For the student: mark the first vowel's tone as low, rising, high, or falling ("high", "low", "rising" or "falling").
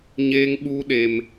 high